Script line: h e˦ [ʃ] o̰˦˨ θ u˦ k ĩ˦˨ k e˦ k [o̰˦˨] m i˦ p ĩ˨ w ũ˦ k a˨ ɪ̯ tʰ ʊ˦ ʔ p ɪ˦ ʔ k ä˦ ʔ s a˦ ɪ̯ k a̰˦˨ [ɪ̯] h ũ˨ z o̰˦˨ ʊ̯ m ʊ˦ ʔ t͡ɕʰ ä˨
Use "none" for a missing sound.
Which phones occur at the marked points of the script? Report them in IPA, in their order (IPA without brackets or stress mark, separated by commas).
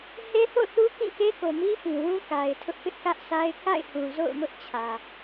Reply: θ, o˨, ɪ̯